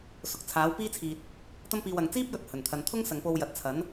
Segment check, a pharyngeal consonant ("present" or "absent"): absent